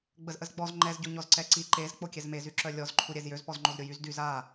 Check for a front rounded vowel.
present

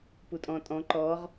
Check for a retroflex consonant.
absent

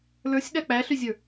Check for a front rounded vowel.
present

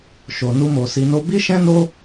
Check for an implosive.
absent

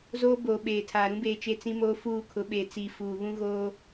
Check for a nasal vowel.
present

